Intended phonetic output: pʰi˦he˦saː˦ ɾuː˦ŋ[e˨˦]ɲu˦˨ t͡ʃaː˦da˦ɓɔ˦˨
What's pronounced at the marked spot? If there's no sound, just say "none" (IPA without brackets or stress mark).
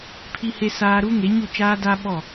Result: e˨˦